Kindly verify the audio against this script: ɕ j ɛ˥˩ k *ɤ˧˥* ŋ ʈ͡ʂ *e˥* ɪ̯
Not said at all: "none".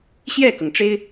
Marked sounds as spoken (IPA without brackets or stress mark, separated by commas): ɤ˩, e˥